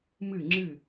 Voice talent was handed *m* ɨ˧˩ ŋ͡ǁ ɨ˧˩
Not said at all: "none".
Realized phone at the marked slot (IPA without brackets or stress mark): m